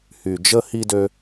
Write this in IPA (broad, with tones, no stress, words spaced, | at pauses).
hy˨d͡ʒə˦hi˦dø˦